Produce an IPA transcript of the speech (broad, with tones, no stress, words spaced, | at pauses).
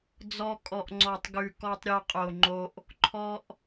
d͡zɔ˧ kʼɔ˨ʔ ŋ͡ǀɔ˨tˤɡʉ˨ kɔ˧tˤɾʲo˧qʼo˨ŋ͡ǃo˧ʔ | ǃʰɔ˧ʔ